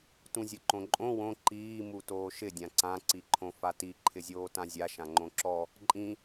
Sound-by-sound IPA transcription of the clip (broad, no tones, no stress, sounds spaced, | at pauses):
t ũ zʲ ʊ ǃ õ ǃʼ õ w õ ǃ iː m u t oː ʃ ɪ dʲ ã ǀ ã ǀ i ǃʰ õ f a t i ǃʰ ɪ zʲ oː t ã zʲ a ʃ ã ŋ͡ǃ õ ǁ ɔ | ǃʼ ĩ